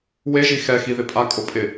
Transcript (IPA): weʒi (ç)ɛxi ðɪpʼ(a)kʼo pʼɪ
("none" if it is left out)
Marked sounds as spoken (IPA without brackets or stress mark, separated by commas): x, a